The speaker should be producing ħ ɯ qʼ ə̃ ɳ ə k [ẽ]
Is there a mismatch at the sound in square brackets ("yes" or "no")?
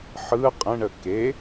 yes